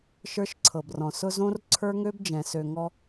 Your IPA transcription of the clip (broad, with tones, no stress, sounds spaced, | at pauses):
ʃ ə˞˦ ʃ ǀʰ ɤ˨ b r ɔ̃˨ s ʊ˦ z õ˦ r ǀʰ ə˞˦ ŋ ø˦ b d͡ʒ ɛ̃˨ s ø˨ ŋ ɔ˦